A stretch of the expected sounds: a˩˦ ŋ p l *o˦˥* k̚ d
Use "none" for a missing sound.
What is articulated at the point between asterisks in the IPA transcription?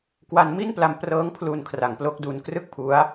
o˦˥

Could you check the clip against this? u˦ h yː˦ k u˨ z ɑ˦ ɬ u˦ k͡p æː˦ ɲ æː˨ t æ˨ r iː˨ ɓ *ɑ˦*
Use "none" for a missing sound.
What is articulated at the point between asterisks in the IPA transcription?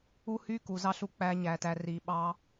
ɑ˦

